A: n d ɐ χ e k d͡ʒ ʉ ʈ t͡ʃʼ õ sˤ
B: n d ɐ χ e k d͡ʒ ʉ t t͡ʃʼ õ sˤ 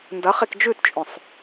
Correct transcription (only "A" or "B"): B